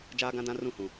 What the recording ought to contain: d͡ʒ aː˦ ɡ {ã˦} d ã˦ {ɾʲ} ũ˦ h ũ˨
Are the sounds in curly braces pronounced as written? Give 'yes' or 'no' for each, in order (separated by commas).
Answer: yes, no